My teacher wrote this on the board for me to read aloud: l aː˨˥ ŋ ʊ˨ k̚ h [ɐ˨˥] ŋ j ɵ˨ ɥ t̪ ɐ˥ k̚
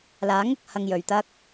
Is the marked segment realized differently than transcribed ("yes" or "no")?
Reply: yes